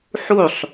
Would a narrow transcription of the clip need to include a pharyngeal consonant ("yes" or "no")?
yes